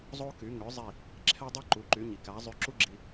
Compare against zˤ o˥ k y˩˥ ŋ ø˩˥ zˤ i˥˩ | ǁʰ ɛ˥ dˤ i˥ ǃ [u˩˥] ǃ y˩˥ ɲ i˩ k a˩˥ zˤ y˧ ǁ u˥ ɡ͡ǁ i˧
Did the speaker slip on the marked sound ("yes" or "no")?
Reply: no